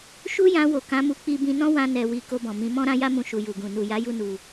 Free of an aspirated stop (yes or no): yes